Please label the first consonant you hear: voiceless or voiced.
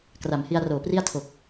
voiceless